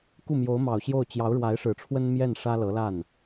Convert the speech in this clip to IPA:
k u˥˩ m j o˧˥ ʊ̯ m ɑ˨˩ ʊ̯ ɕ j o˥˩ ʊ̯ t͡ɕ j ɑ˧˥ ʊ̯ ɻ w a˧˥ ɪ̯ ʂ ɻ̩˨˩ ʈ͡ʂʰ w ə˥ n m j ɛ˥˩ n ʂ ä˥ l ɤ˧˥ l a˥˩ n

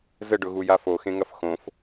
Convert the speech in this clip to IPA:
z ə ɖ ʊ ɣ u j a f o x ẽ ŋ ɐ f x õ f

